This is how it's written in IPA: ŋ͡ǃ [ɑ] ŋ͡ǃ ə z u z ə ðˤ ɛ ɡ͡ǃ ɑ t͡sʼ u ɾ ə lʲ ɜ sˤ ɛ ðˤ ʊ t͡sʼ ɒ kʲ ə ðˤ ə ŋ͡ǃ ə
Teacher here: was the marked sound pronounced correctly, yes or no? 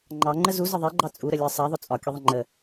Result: yes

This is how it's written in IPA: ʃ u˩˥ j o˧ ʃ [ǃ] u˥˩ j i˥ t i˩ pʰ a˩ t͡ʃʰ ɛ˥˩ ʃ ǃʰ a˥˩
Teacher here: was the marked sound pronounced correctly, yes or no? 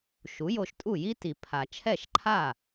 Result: no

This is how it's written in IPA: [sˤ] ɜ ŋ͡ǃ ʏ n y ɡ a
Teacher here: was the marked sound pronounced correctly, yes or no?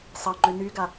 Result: yes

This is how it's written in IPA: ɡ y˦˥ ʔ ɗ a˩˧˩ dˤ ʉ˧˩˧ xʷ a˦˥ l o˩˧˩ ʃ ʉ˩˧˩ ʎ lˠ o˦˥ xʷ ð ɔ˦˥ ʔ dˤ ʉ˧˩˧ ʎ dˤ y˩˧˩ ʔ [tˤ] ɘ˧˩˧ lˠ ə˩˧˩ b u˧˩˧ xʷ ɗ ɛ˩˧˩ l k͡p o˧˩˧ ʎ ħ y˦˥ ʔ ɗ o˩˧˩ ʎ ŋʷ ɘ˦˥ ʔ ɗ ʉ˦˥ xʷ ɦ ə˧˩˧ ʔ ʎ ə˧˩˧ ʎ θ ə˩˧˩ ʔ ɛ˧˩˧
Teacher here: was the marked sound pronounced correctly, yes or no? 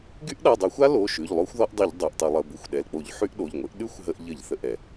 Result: yes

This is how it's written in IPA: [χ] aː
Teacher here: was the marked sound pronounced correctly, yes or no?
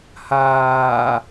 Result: no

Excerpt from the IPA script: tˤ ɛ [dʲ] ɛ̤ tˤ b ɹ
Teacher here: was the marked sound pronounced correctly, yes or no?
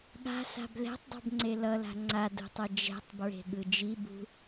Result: no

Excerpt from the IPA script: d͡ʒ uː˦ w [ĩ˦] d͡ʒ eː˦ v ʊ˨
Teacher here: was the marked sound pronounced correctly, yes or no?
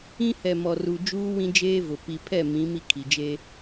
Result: yes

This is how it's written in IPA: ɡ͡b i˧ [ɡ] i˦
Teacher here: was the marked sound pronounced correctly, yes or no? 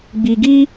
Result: yes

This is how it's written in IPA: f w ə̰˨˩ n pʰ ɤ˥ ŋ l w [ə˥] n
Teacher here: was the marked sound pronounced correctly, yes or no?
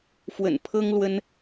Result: yes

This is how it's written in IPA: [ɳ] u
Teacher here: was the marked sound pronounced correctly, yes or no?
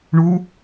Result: yes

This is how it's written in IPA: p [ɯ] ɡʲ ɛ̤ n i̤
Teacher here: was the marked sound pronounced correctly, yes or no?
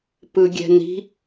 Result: yes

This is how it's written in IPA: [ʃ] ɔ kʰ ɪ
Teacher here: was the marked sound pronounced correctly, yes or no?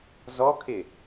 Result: no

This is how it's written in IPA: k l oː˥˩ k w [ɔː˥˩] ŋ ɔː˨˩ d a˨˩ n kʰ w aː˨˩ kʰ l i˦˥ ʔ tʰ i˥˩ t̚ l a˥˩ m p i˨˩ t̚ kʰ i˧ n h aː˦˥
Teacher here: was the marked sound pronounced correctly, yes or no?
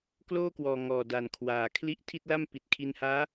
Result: no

